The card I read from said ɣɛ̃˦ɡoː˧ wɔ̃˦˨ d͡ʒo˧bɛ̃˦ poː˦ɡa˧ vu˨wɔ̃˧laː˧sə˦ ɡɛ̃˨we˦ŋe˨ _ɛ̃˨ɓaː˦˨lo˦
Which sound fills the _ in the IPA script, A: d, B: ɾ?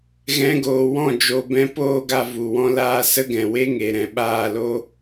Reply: B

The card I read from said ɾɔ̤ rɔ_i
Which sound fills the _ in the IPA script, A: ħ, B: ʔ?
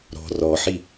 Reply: A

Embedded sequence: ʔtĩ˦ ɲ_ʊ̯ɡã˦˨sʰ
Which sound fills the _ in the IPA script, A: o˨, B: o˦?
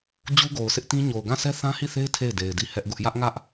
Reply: A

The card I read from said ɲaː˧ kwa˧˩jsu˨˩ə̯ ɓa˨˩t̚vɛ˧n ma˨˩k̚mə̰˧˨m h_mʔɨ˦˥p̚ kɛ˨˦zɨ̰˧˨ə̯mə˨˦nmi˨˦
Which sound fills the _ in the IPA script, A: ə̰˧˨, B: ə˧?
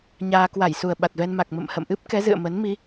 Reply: A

